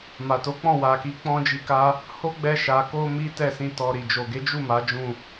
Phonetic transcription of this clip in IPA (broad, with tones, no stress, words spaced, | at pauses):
ma˨to˨˦k͡pɔ̃˦˨ wa˨ki˨˦ k͡pɔ̃˦d͡ʒi˧ka˦ | ho˦ ɡ͡bɛ˧ʃa˨ko˧ mi˦tɛ˦˨sĩ˧ tɔ˨ ɾi˨d͡ʒo˨ɡe˨˦d͡ʒu˦˨ ma˨˦d͡ʒũ˦˨